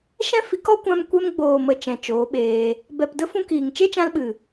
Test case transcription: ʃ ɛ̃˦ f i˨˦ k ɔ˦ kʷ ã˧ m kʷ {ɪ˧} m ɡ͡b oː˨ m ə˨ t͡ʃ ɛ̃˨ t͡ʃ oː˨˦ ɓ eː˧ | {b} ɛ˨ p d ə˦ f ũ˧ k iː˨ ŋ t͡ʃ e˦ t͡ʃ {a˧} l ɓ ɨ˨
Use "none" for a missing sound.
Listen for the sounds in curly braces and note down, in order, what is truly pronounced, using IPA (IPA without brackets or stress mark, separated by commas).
ɛ˧, b, ã˧